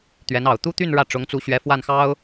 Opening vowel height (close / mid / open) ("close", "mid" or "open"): mid